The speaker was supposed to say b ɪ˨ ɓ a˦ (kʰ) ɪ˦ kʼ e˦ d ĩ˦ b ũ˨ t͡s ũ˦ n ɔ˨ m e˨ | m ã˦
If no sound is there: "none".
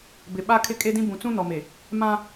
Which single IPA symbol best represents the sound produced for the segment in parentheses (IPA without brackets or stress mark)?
kʰ